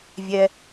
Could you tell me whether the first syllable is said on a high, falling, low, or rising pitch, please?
low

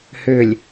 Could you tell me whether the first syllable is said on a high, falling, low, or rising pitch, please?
low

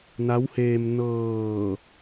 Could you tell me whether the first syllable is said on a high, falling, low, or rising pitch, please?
rising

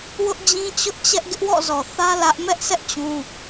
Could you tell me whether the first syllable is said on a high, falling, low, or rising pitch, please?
high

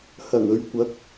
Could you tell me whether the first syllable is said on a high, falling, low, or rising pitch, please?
low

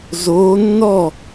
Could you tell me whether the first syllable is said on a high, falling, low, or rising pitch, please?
rising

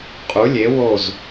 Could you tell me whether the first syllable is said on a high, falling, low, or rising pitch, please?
rising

